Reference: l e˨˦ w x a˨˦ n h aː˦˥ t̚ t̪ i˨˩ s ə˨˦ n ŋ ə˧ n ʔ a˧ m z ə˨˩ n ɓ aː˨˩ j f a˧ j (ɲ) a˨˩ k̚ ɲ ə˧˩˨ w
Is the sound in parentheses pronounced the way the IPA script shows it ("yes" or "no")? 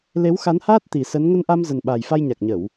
yes